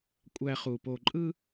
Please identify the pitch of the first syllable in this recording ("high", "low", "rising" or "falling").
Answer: low